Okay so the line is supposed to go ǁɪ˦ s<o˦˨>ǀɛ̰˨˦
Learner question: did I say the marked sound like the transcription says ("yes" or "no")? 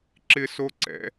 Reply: no